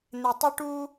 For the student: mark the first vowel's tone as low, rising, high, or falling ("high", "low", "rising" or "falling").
low